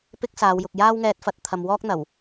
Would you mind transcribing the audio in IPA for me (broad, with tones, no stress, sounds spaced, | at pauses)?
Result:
p ɪ˥ k̚ s aː˨˧ w j ʊ˨ k̚ j aː˥ w ŋ ɛː˧ t̚ f ɐ˧ t̚ t̪ʰ ɐ˨ m w ɔː˥ k̚ n̪ ɐ˨˩ w